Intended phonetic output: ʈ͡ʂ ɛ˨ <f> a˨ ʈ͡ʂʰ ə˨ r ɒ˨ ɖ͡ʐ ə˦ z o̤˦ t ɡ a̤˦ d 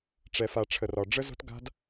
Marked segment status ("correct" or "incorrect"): correct